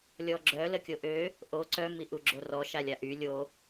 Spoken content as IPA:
lʲɔɡ͡ǁœ ləkʲoʔø | ʔo ǀœ miʔuɡ͡ǁorɔ ʃalʲaʔy lʲo

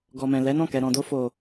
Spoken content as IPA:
ɡɔ˨mɛ̃˨lɛ˨˦nɔ̃˦˨ kɛ˨ɾɔ̃˨do˧ fo˨

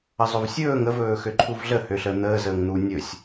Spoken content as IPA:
əzˤɵvsʲɵːŋ əvɵː xøǃʰuvɮə høɬəːn̪əː zəːŋn̪u nʲɵsʲ

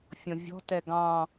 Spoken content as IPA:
fʲɔ̃vʲɔ̤ tɛɡɑ̃

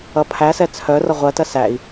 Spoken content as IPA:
ʌpʰæsɛ t͡sʰœrʌ ʁʷɜtɜs æi̯

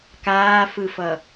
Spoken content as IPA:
kaːfɯfʌ

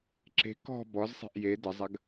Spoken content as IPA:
ǁe̤ kɔ̤ bɔzsˤe̤ʔ je dəzˤɐɡ

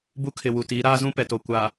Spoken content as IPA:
bu˦kʰɪ˨wu˨tiː˨˦ ɾaː˦zũ˦ pɛ˨to˨ kʷaː˨

